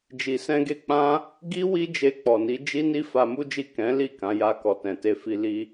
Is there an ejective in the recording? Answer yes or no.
no